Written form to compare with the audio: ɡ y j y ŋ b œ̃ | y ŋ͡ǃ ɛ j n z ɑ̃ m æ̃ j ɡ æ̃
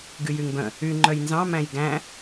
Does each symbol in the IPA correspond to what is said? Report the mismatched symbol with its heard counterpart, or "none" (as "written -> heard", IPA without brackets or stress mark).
ɛ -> œ